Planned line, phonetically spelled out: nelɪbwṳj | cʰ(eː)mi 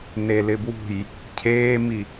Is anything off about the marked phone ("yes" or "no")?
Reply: no